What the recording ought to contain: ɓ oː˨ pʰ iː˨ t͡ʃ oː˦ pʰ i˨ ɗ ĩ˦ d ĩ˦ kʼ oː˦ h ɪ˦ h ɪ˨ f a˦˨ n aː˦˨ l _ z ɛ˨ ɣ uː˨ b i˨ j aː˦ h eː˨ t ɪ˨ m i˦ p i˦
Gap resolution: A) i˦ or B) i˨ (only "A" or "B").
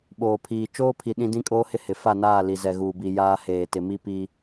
B